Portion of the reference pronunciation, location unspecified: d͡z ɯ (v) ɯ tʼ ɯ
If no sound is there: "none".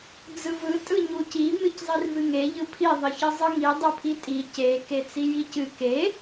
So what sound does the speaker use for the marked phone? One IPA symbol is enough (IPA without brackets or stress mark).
v